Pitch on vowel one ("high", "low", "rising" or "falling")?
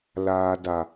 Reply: low